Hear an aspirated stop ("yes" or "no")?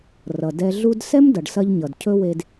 yes